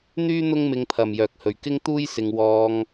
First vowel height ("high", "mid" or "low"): high